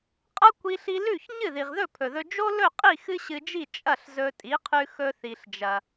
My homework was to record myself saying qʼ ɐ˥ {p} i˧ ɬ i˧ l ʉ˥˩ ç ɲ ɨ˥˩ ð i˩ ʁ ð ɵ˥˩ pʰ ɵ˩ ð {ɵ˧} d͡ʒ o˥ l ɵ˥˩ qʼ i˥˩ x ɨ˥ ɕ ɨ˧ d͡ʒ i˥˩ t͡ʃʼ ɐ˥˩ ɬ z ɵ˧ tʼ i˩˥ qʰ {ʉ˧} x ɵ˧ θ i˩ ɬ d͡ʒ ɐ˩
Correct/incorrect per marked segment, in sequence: incorrect, correct, correct

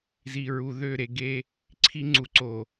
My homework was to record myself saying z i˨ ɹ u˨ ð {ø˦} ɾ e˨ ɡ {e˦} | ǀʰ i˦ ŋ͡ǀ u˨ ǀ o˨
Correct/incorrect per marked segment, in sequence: incorrect, correct

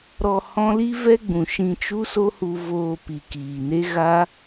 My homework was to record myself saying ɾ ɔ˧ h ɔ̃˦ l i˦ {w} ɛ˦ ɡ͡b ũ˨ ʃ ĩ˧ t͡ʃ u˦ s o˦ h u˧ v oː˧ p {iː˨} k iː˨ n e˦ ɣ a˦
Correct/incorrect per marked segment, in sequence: incorrect, incorrect

